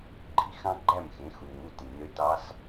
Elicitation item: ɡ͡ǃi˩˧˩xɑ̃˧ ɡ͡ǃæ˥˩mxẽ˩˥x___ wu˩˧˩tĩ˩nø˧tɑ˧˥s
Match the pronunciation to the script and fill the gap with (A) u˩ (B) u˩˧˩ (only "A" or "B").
A